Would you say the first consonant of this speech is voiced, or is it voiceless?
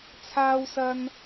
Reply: voiceless